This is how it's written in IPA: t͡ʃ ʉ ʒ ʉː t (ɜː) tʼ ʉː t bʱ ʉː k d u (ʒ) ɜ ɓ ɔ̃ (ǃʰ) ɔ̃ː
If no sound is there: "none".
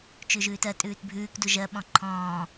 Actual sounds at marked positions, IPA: ɜ, ʒ, ǃʰ

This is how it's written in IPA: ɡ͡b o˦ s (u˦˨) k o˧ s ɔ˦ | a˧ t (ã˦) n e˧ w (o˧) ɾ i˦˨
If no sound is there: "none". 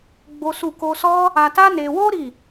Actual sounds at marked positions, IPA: u˦˨, a˦, o˦

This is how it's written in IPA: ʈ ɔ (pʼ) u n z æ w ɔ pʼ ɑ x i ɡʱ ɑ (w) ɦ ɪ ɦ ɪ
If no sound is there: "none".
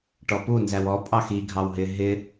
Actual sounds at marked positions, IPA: p, w

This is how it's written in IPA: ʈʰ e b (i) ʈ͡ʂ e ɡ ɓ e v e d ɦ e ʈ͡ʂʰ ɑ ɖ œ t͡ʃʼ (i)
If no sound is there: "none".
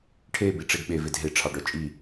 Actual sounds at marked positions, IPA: i, i

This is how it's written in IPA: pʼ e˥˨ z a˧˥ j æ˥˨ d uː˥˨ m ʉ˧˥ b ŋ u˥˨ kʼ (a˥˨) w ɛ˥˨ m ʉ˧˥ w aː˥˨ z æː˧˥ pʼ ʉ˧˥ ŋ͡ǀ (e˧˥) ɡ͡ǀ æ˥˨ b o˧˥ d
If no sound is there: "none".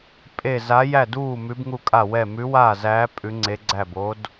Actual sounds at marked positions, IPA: a˥˨, e˧˥

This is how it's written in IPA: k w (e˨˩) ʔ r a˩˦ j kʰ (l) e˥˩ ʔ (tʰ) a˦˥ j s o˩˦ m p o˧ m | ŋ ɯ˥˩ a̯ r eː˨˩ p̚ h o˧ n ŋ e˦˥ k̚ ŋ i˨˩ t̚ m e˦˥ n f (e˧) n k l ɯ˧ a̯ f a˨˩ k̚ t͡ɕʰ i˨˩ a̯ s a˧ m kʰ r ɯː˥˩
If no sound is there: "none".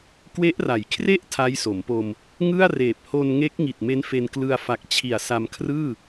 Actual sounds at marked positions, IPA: e˦˥, r, tʰ, e˧

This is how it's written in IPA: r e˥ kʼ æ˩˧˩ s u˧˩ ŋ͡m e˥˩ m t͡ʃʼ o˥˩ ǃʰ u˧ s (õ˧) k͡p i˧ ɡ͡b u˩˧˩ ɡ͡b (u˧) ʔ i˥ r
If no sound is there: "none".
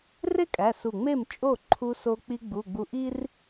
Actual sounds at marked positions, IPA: o˧, u˧

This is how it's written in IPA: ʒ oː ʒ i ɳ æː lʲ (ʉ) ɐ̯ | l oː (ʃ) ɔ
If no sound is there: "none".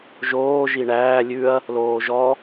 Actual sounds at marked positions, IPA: ʉ, ʒ

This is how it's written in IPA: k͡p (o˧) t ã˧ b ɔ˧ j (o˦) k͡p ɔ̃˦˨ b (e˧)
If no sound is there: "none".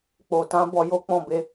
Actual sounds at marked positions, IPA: o˨, o˦, e˧

